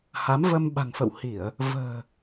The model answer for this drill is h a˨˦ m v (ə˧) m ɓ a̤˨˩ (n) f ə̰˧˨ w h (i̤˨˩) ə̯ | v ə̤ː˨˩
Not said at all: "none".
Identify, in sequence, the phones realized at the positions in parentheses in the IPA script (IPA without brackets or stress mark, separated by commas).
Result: ə˧, ŋ, i˧˩˨